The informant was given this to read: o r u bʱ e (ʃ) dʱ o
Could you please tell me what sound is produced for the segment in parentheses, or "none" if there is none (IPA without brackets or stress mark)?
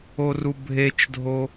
t͡ʃ